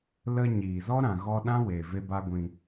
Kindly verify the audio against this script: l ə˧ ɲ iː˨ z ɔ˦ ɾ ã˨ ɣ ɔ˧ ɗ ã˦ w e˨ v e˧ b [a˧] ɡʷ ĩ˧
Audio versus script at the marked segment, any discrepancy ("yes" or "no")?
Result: no